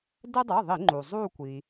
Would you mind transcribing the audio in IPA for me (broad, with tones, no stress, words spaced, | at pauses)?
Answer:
dɛ˦dˤʌ˩˧˩ðˤi˧˩˧ ŋ͡ǃu˩ zˤu˦˨kʷi˩